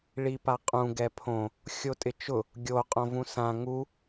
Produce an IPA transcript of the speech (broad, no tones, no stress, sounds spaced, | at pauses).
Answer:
ɭ i p a qʼ ũ ɡ ɛ pʰ õ | xʲ o tʼ ɪ t͡ʃ ʊ | ɡʲ o qʼ õ v ũ s ã ŋ u